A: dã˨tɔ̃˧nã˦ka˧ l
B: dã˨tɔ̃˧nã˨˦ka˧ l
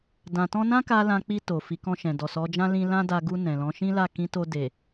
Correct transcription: A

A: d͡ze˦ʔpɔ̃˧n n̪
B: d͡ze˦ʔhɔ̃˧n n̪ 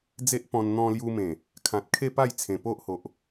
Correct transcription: A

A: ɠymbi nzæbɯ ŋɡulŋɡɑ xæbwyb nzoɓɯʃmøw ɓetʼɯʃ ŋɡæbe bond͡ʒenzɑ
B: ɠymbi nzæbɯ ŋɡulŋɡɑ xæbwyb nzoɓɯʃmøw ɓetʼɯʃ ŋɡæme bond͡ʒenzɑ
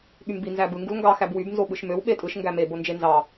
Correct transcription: B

